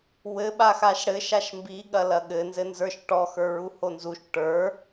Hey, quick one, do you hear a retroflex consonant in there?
yes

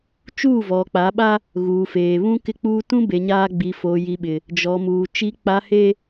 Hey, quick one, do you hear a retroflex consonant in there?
no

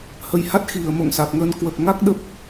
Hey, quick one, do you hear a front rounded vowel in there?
no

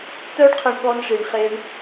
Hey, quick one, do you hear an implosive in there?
yes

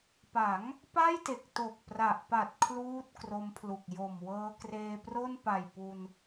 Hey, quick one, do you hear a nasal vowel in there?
no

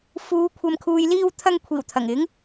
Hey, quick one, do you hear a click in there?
no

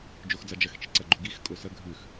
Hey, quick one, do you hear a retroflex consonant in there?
no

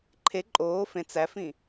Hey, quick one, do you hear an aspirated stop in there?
yes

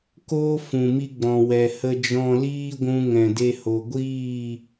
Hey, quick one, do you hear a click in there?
no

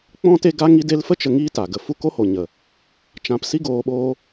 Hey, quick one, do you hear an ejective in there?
no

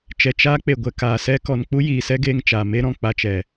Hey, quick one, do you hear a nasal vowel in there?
yes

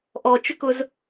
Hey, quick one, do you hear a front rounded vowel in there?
yes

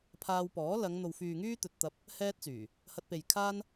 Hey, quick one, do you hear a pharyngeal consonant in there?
no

